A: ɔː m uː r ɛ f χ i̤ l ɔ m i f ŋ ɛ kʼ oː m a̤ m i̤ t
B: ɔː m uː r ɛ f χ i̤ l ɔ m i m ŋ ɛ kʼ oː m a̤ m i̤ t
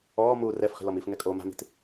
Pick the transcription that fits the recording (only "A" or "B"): A